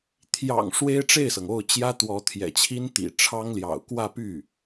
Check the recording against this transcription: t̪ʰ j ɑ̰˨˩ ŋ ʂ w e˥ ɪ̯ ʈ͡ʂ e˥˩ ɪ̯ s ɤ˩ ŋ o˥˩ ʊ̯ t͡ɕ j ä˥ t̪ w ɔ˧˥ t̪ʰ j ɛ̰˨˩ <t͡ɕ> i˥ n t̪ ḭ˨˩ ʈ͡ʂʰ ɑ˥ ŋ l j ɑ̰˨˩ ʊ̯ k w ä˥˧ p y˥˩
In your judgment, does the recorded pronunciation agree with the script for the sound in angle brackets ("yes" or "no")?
no